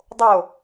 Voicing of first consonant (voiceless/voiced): voiced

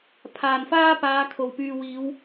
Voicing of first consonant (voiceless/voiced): voiceless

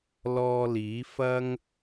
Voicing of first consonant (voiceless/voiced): voiced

